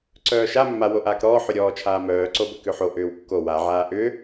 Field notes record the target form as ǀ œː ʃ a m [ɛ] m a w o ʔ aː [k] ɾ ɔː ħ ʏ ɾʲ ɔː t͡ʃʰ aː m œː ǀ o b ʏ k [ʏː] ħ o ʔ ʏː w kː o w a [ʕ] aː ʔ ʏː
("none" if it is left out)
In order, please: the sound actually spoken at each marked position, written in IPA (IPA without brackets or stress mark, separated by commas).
ʏ, k, ʏ, ʕ